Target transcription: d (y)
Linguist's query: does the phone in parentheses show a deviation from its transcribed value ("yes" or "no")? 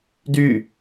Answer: no